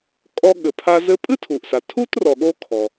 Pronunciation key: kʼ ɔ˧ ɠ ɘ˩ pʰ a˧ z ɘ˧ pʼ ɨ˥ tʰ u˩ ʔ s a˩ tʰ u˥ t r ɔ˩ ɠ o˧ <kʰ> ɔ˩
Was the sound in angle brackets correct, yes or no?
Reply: yes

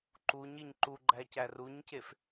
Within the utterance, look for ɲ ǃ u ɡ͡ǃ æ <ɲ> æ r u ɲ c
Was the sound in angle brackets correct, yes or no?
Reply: no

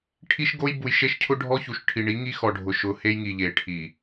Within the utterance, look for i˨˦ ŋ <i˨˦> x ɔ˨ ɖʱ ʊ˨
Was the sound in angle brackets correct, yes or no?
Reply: no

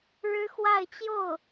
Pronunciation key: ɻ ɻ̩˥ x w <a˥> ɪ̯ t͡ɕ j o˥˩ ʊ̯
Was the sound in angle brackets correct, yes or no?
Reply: no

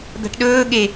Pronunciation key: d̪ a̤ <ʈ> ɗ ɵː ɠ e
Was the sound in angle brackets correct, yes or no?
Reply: yes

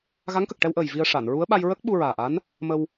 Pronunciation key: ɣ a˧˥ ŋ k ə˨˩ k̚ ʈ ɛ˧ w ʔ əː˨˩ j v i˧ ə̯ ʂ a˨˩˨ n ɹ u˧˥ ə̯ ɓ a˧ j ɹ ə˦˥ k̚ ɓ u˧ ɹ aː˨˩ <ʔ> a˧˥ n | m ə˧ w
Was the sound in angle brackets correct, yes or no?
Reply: yes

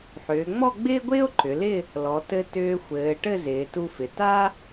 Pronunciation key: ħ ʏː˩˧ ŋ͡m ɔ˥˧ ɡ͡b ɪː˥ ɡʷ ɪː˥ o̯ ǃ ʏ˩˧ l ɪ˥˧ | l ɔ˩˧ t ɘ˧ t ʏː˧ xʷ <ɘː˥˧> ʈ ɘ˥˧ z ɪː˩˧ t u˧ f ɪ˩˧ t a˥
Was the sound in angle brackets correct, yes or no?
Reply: no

